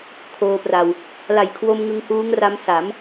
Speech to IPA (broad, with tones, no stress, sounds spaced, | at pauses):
kʰ oː˧ p r a˧ w | l a˨˩ j kʰ w o˧ m ŋ ɯ˧ ŋ h uː˦˥ ŋ r a˦˥ m s a˩˦ m